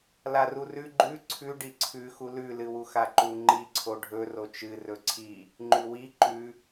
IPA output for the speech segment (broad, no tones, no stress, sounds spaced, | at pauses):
l a r u r ʉ ɡ͡ǃ ʉ ǀʰ ʉ ɖ i ǀʰ ʉ x u l ʉ l ɨ w u x a ǃ u ŋ͡ǃ i ǀʰ o ɖʱ ɵ r o t͡ʃ ɨ r ɵ ǀʰ i | ŋ͡ǃ ʉ w i ǃ ʉ